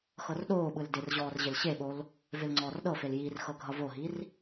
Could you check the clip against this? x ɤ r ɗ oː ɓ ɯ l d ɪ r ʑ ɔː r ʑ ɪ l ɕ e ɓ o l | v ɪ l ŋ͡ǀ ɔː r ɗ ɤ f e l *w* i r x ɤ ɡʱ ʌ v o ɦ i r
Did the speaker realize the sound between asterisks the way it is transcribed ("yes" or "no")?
no